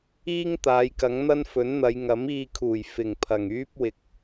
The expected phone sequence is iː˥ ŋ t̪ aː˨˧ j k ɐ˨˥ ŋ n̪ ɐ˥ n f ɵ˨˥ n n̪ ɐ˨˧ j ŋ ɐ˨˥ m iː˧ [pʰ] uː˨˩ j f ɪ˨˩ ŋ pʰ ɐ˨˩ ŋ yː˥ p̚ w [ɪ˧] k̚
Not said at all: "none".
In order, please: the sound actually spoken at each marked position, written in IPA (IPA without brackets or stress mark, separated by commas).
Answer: kʰ, ɪ˨